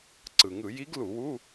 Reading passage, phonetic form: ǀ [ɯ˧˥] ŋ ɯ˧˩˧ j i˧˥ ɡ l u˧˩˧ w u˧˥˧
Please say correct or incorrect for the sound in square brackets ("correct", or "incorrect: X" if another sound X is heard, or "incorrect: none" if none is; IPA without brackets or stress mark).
incorrect: ɯ˩